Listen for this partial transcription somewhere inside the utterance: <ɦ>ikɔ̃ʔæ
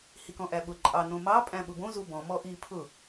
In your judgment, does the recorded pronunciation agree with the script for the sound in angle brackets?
no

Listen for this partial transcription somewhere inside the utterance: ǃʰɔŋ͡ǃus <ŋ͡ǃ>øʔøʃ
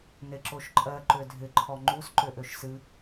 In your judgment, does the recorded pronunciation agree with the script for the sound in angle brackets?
no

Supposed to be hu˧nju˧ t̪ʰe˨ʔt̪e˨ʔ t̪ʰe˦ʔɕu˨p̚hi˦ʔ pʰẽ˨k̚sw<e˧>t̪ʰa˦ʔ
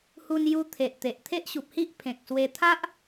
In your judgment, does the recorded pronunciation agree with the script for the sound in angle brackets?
yes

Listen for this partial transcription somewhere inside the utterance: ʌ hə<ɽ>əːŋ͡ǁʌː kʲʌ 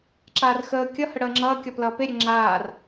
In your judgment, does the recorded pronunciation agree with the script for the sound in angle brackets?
yes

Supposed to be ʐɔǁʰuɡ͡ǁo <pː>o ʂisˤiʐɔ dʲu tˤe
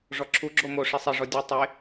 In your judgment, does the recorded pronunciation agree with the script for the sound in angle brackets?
no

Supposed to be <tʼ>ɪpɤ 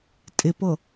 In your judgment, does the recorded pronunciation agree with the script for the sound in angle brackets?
yes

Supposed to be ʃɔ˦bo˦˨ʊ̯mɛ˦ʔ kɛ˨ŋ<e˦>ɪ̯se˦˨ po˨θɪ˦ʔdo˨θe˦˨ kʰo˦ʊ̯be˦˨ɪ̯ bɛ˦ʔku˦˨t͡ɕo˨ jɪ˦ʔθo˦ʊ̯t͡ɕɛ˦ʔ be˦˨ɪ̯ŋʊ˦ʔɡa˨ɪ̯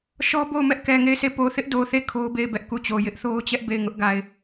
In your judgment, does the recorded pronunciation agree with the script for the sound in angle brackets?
no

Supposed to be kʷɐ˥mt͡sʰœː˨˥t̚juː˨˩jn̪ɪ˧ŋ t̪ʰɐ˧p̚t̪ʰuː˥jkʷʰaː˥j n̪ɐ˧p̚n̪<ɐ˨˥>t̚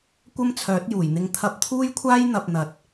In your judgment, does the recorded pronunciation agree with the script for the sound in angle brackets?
yes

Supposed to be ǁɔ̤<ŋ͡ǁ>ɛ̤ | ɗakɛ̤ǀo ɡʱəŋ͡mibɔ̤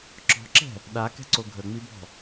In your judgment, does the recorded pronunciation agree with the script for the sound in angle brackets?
no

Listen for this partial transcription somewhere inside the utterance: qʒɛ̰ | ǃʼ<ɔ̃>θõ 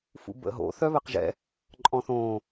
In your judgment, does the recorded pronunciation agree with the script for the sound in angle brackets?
yes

